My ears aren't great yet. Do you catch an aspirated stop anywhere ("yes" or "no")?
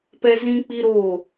no